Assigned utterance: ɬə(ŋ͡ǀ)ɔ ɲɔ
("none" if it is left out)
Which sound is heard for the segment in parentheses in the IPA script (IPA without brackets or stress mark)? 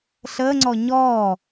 ŋ͡ǀ